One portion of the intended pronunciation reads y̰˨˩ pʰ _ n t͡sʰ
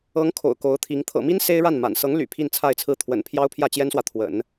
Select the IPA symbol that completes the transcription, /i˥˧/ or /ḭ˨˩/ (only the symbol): i˥˧